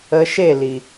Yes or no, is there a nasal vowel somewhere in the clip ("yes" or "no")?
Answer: no